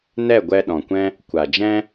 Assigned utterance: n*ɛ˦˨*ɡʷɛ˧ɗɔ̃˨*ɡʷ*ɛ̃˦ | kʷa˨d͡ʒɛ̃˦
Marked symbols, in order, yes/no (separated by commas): yes, no